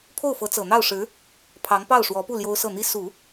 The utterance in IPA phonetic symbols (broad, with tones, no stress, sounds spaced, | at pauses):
pʰ o˥˩ ʊ̯ f ɤ˧˥ t͡s ɤ˨˩ n̪ ɑ˥˩ ʊ̯ ʂ ɻ̩˧˥ | pʰ ɑ˧˥ ŋ p ɑ˥˩ ʊ̯ ʂ w ɔ˧˥ p u˥˩ l j o˥ ʊ̯ s ɤ˥˩ n̪ i˥ s u˨˩˦